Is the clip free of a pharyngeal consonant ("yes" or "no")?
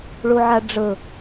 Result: no